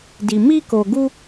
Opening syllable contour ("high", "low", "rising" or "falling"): low